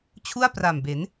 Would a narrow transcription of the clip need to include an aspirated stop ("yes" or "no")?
yes